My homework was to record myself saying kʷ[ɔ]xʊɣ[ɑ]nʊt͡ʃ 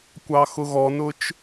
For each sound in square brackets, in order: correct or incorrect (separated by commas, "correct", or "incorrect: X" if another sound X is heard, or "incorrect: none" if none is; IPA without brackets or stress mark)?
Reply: incorrect: ɑ, incorrect: ɔ